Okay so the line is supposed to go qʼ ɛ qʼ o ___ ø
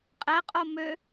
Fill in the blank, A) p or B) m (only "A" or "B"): B